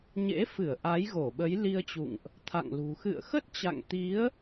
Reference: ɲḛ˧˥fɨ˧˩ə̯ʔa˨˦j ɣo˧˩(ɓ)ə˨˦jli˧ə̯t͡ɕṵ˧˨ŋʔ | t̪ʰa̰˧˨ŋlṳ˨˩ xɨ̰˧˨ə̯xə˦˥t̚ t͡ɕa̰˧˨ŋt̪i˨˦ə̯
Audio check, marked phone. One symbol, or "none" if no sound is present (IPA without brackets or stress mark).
ɓ